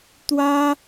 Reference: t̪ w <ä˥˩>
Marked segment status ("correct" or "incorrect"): incorrect